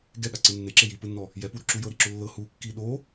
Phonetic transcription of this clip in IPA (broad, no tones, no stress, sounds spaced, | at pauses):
ɡ ɛ ɠ a ǀ ɯ nː e ǁ e j i p ɯ nː ɔ | j ɛ p u ɾ u ǁ u j ɤ ɾ i ǁ o lː ɤ h u kː i ɗ o